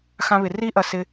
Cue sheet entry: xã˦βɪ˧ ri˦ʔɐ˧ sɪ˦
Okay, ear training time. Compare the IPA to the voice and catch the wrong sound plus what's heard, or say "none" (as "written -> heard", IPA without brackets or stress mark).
none